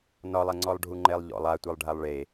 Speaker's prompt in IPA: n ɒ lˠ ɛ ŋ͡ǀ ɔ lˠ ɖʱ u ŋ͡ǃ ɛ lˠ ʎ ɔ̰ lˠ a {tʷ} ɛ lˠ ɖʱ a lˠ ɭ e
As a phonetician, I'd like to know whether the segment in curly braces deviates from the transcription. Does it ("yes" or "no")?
no